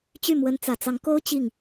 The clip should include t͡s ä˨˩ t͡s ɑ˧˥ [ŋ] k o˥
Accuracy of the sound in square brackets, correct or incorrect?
correct